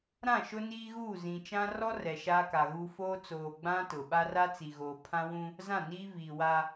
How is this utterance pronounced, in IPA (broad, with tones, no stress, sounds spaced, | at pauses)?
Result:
ɾ ã˦˨ ʃ ʊ˦ n iː˦ ɣ uː˦˨ z ĩ˨ t͡ʃ ã˦ r ɔ˦ r ɛ˨ ʃ a˦ k a˨ ɣ uː˦ f oː˦ t͡s oː˨ ɡ͡b ã˦ t ʊ˨ ɓ a˦ r a˦ t͡s i˨ ɣ oː˨ pʰ ã˦ w ũ˦ | z ã˦˨ n iː˦ v iː˨ w a˦